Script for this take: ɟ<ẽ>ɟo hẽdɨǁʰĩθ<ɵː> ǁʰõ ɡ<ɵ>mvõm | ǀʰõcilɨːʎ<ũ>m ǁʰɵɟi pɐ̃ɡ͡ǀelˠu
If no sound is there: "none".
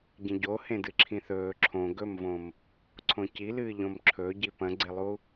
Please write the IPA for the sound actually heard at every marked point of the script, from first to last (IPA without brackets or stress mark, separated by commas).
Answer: ẽ, ɵː, ɵ, õ